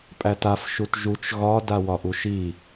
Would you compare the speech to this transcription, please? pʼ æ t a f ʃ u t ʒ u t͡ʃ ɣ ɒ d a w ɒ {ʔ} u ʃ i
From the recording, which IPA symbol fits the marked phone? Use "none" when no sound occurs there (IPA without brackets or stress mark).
ʔ